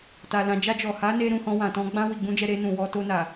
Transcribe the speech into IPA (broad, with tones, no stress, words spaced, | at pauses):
ta˨lã˨d͡ʒa˧d͡ʒɔ˨ ha˨˦ne˧ɾũ˨ hɔ̃˧wã˨tɔ̃˧ ɡ͡bã˧ wi˨ɡ͡bũ˧d͡ʒɛ˧ ɾe˧nũ˨wɔ˧ to˧na˨